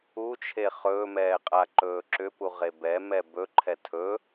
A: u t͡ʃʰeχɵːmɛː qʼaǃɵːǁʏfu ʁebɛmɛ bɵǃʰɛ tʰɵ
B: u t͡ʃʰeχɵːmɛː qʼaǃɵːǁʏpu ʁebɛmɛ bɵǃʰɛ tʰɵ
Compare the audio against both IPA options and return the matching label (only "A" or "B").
B